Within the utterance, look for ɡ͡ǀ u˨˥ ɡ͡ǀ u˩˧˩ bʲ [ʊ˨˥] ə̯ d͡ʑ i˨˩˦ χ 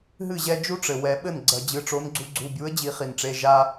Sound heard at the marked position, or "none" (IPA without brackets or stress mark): u˨˥